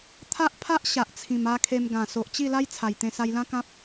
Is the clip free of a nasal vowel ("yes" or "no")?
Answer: no